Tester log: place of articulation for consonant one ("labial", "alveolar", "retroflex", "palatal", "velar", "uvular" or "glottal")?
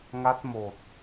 velar